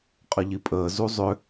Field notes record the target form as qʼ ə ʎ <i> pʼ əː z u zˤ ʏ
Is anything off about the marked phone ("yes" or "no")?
no